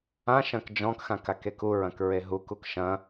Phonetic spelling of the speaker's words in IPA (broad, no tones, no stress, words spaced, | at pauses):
ãʃɐ̃k d͡ʒɔ̃kxãk akekuɹɐ̃k ɹeɦukuk ʃɐ̃